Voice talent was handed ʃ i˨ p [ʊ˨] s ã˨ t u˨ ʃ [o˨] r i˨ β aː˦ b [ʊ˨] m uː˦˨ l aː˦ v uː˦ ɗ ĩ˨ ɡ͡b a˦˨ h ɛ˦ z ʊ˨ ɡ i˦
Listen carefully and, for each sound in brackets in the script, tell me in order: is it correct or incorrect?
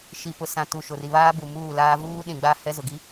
correct, correct, incorrect

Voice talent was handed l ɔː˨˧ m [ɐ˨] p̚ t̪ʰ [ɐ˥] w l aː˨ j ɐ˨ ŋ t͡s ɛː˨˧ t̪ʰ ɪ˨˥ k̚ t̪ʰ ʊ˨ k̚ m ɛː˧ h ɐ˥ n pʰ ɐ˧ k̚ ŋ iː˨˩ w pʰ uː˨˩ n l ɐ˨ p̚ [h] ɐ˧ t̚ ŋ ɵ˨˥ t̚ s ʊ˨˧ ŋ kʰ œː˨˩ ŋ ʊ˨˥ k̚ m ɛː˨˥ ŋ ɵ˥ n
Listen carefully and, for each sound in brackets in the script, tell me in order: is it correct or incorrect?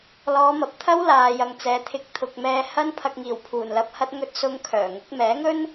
correct, correct, correct

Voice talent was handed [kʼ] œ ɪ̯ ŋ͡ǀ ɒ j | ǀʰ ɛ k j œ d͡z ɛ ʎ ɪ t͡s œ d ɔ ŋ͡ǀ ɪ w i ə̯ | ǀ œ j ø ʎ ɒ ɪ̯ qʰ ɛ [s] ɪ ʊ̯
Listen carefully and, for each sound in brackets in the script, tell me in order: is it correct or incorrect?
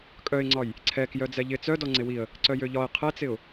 correct, incorrect

